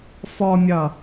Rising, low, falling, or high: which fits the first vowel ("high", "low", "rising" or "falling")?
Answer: low